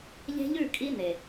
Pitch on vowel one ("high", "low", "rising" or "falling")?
high